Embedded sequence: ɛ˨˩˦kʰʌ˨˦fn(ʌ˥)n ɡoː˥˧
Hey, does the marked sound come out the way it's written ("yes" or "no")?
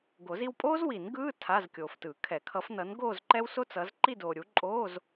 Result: no